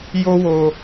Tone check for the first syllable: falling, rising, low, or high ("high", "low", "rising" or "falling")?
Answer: high